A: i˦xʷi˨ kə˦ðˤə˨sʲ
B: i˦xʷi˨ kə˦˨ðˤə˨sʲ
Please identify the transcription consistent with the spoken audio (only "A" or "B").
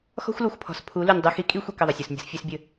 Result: B